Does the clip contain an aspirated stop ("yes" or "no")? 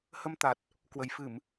no